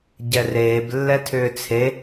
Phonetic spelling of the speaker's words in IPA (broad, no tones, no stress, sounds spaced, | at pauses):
ɟ ɛ r eː b lː ɛ tʰ ʏː t͡sʰ e